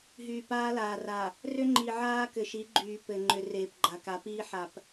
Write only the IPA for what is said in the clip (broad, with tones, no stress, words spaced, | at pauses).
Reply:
ɦyː˨paː˦laː˨ra˨ | rʏ˦ŋ͡ǃi˨ ʕaː˦ kɘ˨ʃi˨˦ɡ͡ǃyː˨ pɘ˨ ŋ͡ǃʏ˨ reː˨pɡ͡ǃa˨ka˨˦piː˦ ħa˨p